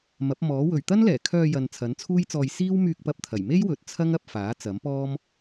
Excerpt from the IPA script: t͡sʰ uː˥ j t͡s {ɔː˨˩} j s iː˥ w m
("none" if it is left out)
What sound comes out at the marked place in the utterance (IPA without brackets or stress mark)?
ɔː˧